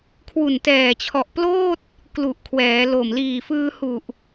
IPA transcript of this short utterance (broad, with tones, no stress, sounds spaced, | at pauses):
kʰ w u˨˩ n t ɛː˨˩ t͡ɕʰ ɔ˨˩ ʔ p l oː˥˩ t̚ | k l u˨˩ ʔ kʰ w ɛː˩˦ l o˨˩ m l iː˨˩ f ɯː˧ h u˨˩ ʔ